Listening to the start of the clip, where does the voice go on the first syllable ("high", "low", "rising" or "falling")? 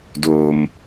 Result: low